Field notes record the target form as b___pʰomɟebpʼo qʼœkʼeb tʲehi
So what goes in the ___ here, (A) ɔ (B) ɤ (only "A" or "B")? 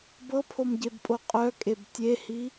B